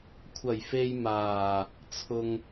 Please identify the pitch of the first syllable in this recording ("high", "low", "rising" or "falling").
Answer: low